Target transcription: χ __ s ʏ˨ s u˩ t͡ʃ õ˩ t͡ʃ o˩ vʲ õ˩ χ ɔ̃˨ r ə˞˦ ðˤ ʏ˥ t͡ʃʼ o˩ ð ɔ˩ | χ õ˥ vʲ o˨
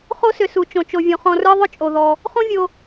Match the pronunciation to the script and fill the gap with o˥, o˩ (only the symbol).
o˥